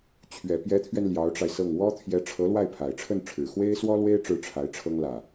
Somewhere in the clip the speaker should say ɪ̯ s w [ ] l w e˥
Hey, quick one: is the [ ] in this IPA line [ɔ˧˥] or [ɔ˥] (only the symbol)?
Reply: ɔ˥